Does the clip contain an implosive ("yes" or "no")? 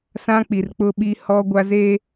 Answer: yes